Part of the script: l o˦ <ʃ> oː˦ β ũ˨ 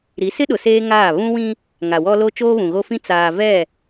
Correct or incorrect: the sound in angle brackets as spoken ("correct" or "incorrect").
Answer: incorrect